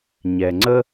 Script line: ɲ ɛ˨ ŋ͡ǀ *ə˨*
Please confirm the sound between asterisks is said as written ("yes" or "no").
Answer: no